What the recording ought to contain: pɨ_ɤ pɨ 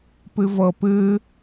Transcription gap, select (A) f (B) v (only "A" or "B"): B